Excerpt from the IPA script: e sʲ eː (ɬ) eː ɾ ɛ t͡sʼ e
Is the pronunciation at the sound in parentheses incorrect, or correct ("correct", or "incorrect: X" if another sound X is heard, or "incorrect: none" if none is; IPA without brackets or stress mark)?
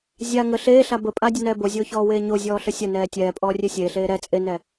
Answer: correct